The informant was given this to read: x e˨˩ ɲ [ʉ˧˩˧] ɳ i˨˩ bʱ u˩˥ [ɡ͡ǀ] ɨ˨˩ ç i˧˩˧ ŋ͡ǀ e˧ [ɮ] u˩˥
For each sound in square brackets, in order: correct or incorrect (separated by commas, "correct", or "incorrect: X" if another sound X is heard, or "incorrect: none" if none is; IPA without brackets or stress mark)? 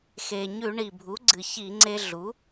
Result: correct, correct, correct